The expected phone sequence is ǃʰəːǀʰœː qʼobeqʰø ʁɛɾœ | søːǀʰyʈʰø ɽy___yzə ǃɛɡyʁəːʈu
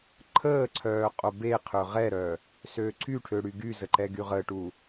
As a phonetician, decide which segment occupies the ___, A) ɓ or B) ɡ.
B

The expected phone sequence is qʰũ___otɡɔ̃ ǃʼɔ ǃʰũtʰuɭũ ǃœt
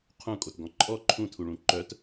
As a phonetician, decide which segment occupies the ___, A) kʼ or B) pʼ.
A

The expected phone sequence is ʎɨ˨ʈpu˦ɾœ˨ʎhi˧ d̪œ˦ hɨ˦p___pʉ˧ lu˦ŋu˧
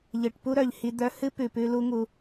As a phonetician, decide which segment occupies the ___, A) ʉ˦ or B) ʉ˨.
B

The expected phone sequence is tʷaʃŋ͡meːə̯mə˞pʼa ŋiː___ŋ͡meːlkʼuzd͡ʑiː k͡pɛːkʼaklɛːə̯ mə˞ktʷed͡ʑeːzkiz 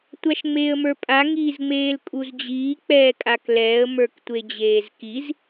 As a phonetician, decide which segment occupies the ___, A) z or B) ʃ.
A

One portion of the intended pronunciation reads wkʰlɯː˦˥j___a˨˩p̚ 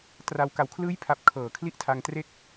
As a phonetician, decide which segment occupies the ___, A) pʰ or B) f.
A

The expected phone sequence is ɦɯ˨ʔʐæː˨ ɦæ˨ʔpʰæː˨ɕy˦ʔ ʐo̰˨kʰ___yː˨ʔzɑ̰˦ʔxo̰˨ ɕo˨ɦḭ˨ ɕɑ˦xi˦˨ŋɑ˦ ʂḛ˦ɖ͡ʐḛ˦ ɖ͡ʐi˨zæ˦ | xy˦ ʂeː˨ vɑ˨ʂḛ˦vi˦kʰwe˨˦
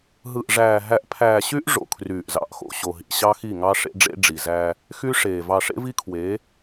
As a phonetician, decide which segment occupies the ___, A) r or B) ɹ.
A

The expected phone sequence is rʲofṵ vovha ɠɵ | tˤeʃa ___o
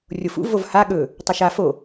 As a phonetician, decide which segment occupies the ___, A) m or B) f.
B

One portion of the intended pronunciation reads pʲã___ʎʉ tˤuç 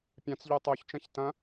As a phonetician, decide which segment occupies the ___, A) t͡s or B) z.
A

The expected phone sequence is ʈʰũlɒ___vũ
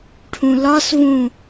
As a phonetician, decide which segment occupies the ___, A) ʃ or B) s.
B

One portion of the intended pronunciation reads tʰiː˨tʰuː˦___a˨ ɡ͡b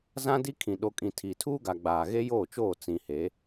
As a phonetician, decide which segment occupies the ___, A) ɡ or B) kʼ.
A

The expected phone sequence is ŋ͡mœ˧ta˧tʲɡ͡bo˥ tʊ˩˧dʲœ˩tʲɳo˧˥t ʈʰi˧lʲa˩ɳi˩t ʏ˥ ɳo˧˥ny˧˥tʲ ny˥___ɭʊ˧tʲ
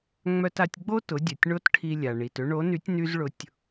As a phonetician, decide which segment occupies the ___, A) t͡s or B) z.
B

